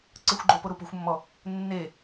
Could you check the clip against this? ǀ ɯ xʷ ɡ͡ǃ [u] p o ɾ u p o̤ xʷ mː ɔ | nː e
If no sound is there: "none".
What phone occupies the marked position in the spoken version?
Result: o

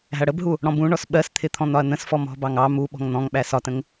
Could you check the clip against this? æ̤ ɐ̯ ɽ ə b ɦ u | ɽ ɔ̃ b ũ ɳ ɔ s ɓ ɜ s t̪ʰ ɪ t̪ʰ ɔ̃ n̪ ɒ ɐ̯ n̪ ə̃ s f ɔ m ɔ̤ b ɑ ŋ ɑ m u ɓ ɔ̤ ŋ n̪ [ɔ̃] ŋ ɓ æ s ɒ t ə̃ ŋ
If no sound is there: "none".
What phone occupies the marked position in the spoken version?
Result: ɔ̃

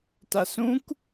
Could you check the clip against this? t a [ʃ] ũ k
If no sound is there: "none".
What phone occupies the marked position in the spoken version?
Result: s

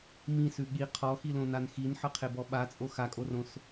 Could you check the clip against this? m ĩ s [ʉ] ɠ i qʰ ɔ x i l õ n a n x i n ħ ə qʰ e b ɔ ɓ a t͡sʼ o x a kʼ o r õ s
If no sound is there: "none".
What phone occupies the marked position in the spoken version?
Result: ʉ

